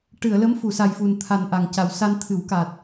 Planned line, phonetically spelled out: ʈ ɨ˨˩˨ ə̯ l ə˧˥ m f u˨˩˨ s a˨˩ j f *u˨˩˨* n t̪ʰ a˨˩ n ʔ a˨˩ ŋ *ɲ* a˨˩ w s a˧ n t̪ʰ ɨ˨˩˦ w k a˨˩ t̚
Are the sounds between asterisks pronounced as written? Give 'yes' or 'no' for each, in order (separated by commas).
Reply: no, no